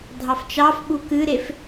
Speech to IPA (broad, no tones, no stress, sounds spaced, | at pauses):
dʱ ɑ f t͡ʃ ɑ f ɓ u k ɨ ɾ e f